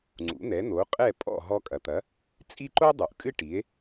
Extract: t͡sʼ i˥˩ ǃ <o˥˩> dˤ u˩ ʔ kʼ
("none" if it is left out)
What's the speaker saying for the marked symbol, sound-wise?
o˥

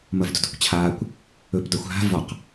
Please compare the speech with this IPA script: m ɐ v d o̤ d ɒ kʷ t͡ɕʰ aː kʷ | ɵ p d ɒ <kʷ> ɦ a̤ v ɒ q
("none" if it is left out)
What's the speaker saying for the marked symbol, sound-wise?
xʷ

